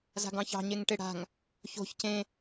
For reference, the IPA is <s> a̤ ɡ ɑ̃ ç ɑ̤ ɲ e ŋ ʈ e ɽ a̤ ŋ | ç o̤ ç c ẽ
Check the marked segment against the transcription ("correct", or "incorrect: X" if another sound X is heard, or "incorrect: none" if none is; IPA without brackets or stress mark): incorrect: z